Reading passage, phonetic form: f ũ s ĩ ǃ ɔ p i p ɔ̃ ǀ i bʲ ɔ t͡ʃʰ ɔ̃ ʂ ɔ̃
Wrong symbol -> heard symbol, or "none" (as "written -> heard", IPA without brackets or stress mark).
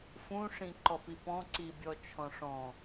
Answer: s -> ʂ